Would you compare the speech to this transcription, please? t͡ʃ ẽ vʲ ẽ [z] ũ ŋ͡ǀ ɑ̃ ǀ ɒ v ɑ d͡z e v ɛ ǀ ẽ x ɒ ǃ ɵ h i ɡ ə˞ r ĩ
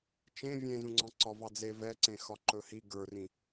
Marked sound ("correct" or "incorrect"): correct